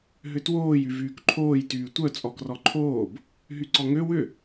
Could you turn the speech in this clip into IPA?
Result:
ɦ ʏ t w oː j y v yː k ǃʰ oː j t yː tʷ œ t͡sʼ ɔ k r ɔ ǃʰ oː b | ɦ y ǀ ɔ ŋ ø w ʏ

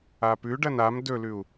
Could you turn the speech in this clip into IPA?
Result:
a p ʉ ɖ ɐ n a m d ɵ l ʉ u̯

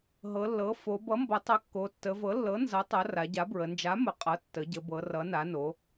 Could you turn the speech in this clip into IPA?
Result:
ɦ ɤ˩˧ lː ɤ˩˥ f o˩˧ b ʌ˩˥ m b ʌ˩˧ tˤ ʌ˩˥ kː o˩˧ tː ə˩˧ v ɤ˩˥ lː ɤ˩˥ n z ʌ˩˥ tˤ ʌ˩˧ r a˩˧ ɟ a˩˥ b ɹ ə˩˧ n d͡ʒ a˩˥ m ə˩˧ qʼ ʌ˩˥ tː ə˩˧ ɟ ə˩˧ b ɤ˩˧ r ʌ˩˧ n a˩˧ n o˩˧

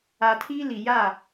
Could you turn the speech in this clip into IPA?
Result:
a˨ tʰ iː˦ l i˨ j a˦˨

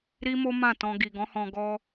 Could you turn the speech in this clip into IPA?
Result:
ɾ i˦ m o˦ m ã˦˨ t ɔ̃˧ ɡ i˨ ɡ ɔ̃˨˦ h ɔ̃˧ ɡ ɔ˧

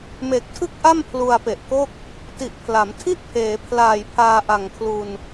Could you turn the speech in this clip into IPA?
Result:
m e˨˩ k̚ tʰ ɯ˥˩ k̚ ʔ a˥˩ m pʰ l u˧ a̯ p e˨˩ ʔ k o˥˩ k̚ | t i˨˩ ʔ pʰ l a˩˦ m tʰ i˦˥ ʔ pʰ eː˩˦ pʰ l aː˨˩ j pʰ aː˧ ʔ a˨˩ ŋ kʰ l u˧ n

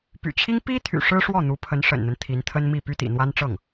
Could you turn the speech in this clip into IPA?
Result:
p y̰˨˩ t͡ɕʰ i˥ ŋ p i˥ t̪ʰ y̰˨˩ ʂ ɻ̩˥ ʂ w ɔ˥˩ n̪ u˧˥ pʰ ə˧˥ n ʂ ə̰˨˩ n n̪ ə˦ n t̪ʰ i˧˥ n t̪ʰ ə˥ n m i˥˩ p y˥ t̪ ḭ˨˩ n̪ w a˥ n ʈ͡ʂ ɤ˥˩ ŋ

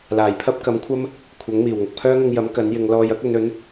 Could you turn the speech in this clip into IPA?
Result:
l aː˨˩ j pʰ ɐ˥ p̚ k ɐ˨˥ m kʷʰ ɐ˥ m | kʷʰ ɐ˨˥ ŋ m iː˨˩ w ŋ ʊ˨ k̚ pʰ œː˥ ŋ ʊ˧ ŋ j ɐ˨˥ m k ɐ˨˥ n j ɪ˨˧ ŋ l ɔː˧ j ɐ˥ k̚ ɵ˨˧ n ɵ˨˥ n

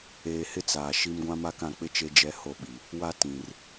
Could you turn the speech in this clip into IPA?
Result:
eː˨ h ɪ˦ t͡s aː˨ ʃ i˦ m ɡʷ ã˦ m a˦ k ã˦˨ k͡p ɪ˦ t͡ʃ e˦ d͡ʒ ɛ˦ h o˦˨ ɓ i˨ | w a˦ t ĩ˨ r

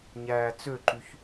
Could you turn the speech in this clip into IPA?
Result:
ɲ æː t͡s ø ǃ y ç

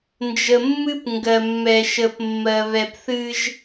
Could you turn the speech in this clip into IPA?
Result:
n d͡ʒ ə˨ mː ɨ˦ p ŋ ɡ ɜ˨ mː ɛ˨ ʃ ə˨ p mː ɜ˨ β ɛ˨ p θ ɨ˦ ʒ

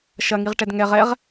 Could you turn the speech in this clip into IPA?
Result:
ʃ ɐ ŋ i ʁ ʈ ɛ d ŋ ɛ ʁ ɛ ʁ

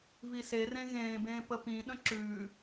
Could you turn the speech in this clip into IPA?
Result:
v i s e r ẽ ɣ ẽː b ẽː p ə p ĩ ɗ ə̃ ǁ ʉː

